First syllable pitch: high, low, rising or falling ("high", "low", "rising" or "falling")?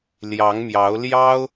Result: rising